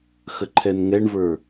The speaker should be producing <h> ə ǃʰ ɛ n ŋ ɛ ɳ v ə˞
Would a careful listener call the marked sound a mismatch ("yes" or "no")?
yes